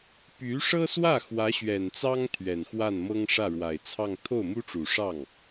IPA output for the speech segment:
py˧˥ʂɤ˥swä˥˩ xwä˧˥ɕɥɛ˨˩nt͡sɑ˥ŋ t̪ʰɥɛ˨˩nxwa˥˩nmɤ˥ŋ ʂä˥˩ɻwa˨˩ɪ̯ t͡sʰɑ˥˧ŋ t̪ʰo˥˩ʊ̯mu˥ʈ͡ʂu˨˩ ʂɑ˥˩ŋ

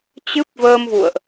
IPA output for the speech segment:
t͡ɕɨ˦˥p̚vəː˧mvṵ˧˨ə̯ʔ

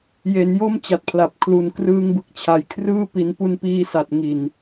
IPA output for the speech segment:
je˩˦njo˥˩m t͡ɕa˨˩t̚pʰla˨˩p̚ kʰlu˨˩nkrɯː˧ŋbɯ˨˩k̚t͡ɕʰa˨˩j kʰrɯː˥˩ pi˩˦npu˧npiː˧sa˨˩t̚ ŋi˨˩n

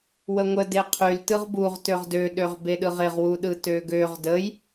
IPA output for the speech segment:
wəŋʷə deqʰyl tɯʁbuʁ tøʁdø ɗøʁbeɗɯʁɪʁ wuɗɯtøɡøʁ dəj

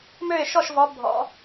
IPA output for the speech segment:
mø˥˨ɪ̯ʃɔ˥˨ʃvɔ˨˦ bʱɔ̰˨˦

